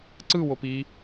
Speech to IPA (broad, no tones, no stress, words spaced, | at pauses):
ǀɯwop i